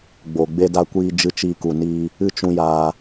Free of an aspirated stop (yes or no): yes